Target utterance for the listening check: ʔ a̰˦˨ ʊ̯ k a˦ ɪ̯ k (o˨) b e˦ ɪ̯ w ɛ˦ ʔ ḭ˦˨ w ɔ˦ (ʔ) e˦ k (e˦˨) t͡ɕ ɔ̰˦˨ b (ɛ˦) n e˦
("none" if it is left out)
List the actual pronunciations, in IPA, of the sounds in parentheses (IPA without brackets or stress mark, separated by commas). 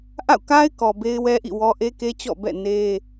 ɔ˨, ʔ, e˦, ɛ̰˦˨